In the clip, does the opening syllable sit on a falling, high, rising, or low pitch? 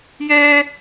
high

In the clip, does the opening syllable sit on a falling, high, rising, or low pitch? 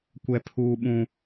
high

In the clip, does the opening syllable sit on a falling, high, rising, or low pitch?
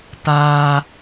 high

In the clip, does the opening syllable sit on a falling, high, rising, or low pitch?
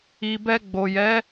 low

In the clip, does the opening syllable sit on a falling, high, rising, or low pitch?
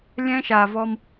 high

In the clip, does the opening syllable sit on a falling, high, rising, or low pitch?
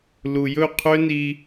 low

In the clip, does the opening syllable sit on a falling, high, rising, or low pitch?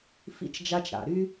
high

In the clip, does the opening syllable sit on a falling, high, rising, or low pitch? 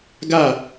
falling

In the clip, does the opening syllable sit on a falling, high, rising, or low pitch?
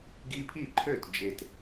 high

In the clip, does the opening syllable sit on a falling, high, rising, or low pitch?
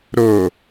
low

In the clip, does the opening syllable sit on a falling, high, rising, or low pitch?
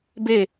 falling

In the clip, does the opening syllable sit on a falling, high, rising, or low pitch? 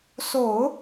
low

